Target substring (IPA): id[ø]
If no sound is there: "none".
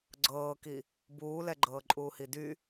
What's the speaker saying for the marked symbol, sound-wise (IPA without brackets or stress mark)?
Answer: y